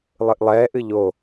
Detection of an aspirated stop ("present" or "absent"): absent